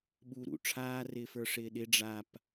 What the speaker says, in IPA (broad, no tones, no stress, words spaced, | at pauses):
ɓuːɾṵ ʈ͡ʂʰaːrɪːfə˞ ʂɪːɗɪ ɖ͡ʐap